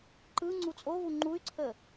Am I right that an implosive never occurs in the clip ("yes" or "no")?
yes